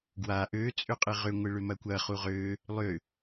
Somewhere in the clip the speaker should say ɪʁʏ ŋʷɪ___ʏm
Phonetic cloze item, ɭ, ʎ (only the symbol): ɭ